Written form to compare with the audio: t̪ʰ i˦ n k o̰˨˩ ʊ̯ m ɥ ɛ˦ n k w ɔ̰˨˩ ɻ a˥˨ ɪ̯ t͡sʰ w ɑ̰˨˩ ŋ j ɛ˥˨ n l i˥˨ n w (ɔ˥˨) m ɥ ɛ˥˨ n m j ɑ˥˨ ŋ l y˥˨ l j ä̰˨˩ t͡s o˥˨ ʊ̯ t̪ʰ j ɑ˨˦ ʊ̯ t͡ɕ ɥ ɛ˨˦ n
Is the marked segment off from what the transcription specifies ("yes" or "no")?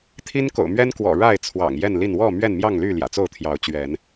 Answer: no